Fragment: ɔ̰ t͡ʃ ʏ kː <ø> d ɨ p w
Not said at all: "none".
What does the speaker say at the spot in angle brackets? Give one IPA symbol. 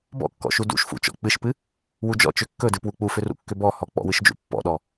ɵ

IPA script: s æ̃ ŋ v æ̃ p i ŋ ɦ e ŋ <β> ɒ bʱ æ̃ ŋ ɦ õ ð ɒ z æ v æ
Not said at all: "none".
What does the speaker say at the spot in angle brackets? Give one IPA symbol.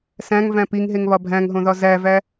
β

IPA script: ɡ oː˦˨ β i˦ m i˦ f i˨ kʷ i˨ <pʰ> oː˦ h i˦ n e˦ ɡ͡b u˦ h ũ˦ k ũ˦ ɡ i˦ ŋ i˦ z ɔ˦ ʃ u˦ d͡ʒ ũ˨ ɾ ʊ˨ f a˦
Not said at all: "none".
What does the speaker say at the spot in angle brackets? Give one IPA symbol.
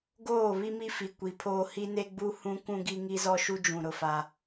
pʰ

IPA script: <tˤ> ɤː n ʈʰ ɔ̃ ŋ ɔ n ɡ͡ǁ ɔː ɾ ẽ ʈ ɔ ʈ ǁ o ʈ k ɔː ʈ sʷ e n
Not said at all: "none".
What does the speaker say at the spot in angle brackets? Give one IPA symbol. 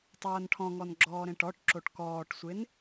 tˤ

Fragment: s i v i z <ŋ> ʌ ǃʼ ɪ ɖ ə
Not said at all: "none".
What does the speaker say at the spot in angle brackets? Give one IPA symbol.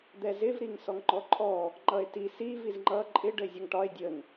ŋ͡ǃ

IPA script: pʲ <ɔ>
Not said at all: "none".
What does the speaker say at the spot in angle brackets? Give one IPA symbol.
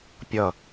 ʌ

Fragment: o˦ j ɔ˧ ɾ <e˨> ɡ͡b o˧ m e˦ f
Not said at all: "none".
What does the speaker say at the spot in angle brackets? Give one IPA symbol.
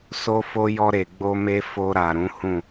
e˨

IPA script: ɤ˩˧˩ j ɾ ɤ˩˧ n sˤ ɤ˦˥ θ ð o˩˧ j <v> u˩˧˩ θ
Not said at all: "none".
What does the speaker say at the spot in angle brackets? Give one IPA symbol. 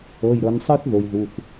ð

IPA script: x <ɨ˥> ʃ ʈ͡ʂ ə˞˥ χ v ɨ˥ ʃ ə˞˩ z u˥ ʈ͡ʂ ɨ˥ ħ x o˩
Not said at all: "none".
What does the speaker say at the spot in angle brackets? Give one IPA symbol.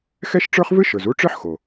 ɛ˥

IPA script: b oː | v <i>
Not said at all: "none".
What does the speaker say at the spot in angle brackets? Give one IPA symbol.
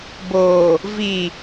i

